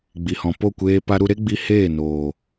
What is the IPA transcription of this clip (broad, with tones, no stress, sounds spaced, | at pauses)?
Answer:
ɡ͡b i˨ h ɔ̃˨ p o˦˨ kʷ eː˧ p a˧ ɾ u˧ ɾ e˦ ɡ͡b i˧ h eː˦˨ n oː˨